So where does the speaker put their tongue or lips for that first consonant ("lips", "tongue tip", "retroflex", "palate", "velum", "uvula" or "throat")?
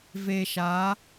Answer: lips